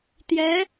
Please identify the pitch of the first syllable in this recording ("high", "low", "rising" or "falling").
rising